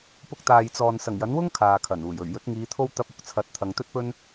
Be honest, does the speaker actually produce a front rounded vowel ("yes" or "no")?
no